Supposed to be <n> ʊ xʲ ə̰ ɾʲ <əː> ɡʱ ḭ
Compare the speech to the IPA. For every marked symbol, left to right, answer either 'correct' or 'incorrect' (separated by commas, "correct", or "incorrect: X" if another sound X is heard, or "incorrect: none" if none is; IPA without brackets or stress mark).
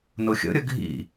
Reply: correct, incorrect: ə